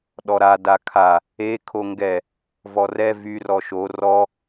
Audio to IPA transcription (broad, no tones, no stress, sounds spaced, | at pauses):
ɗ ɔ ɾ a d a kʰ a | e kʰ o ŋ ɡ ɛ | v ɔ r ɛ v y r ɔ ʃ o r ɔ